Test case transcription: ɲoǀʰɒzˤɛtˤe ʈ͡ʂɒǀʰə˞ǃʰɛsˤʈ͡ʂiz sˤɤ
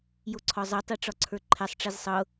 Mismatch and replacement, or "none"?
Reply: ɲ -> j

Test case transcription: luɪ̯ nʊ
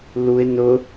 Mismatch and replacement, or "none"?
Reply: none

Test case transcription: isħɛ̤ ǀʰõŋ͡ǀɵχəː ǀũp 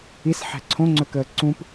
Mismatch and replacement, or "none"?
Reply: χ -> k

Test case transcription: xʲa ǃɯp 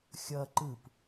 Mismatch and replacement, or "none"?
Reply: a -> ʌ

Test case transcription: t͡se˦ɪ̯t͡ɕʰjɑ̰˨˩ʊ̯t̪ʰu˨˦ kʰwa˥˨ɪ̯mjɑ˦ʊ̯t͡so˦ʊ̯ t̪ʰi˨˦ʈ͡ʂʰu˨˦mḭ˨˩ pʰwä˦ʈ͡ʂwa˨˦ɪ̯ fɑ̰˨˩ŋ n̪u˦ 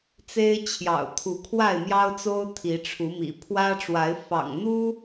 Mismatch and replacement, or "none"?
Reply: none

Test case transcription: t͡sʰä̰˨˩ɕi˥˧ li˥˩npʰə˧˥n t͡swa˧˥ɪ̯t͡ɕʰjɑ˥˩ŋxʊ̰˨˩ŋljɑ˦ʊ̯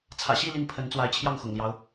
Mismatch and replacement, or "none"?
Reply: none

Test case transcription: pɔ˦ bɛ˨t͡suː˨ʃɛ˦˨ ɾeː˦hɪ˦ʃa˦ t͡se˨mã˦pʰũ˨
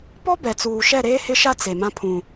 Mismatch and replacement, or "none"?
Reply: none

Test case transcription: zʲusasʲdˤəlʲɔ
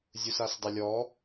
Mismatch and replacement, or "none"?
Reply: sʲ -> s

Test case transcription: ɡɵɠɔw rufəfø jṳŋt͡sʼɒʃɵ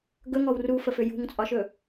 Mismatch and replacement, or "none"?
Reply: ɠ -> ŋ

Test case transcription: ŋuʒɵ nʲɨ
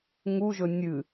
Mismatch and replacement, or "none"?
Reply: none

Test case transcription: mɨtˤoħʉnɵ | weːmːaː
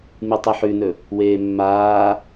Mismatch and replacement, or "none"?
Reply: none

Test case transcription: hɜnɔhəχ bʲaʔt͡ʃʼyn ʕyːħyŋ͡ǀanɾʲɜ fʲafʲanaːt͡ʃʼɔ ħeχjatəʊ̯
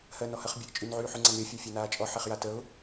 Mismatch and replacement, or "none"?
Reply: none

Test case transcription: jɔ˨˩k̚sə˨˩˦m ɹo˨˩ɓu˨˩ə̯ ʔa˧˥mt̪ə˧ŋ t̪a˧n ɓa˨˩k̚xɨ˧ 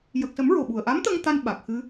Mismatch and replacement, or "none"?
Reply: ɔ˨˩ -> ə˨˩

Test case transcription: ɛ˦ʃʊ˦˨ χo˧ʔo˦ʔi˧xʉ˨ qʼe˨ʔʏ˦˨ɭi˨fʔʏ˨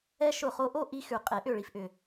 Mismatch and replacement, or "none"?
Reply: none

